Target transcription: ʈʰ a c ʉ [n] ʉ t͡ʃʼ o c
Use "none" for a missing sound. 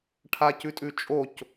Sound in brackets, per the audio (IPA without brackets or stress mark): tʼ